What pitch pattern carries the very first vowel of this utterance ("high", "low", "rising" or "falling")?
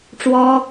high